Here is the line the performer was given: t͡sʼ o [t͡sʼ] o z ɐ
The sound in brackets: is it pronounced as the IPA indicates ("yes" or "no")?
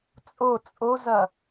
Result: yes